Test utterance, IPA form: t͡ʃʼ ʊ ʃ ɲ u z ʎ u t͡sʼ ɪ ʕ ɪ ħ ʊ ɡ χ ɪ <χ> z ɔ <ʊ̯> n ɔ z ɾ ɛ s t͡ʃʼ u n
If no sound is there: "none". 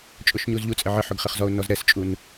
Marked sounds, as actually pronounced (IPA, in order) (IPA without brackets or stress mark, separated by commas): χ, ʊ̯